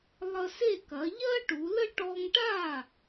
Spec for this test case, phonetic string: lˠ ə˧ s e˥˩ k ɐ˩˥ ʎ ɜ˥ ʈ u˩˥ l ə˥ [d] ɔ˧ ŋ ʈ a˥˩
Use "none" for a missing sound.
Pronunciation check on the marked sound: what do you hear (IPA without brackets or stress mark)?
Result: ʈ